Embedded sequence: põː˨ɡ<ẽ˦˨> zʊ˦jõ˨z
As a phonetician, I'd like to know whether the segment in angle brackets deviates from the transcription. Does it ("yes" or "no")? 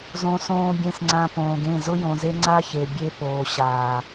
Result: no